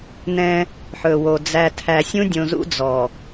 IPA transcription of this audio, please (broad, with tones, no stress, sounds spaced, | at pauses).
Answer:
n ɛ̃˦ | ħ ɵ˨ w o˨ d͡z æ˨ tʰ æ˨ sʲ ũ˦ dʲ õ˨ z ṵ˦ d͡z ɔ˨